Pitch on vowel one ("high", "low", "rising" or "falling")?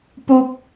high